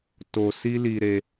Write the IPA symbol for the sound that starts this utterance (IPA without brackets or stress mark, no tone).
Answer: t